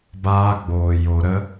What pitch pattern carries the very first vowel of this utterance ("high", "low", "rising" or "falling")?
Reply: high